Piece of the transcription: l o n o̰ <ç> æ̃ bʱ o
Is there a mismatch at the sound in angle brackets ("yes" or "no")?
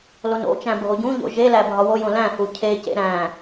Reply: yes